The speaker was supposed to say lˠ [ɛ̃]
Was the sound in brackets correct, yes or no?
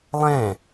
yes